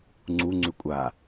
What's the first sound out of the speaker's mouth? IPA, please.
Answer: ŋ͡ǀ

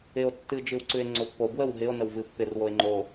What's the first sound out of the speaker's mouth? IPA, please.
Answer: ɪ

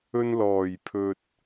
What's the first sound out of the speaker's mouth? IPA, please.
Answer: ɵ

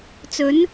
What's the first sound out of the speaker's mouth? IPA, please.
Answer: t͡s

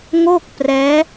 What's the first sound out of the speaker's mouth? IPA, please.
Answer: ŋ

